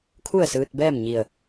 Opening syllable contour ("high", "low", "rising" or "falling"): falling